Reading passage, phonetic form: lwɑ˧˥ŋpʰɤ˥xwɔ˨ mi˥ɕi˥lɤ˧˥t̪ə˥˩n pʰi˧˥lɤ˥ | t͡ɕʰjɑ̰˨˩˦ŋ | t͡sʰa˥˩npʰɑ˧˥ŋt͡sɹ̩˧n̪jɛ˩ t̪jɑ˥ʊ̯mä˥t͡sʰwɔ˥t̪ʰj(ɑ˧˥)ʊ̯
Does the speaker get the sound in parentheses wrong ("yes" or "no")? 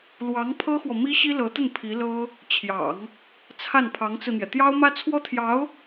no